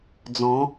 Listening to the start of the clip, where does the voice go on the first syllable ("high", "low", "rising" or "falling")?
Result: rising